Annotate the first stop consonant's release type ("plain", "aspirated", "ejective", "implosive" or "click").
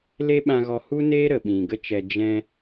implosive